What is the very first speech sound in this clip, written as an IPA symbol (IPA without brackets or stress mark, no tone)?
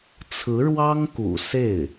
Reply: t͡sʰ